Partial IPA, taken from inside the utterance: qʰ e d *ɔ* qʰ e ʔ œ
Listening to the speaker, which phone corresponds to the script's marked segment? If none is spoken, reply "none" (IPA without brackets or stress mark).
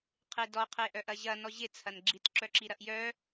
ɔ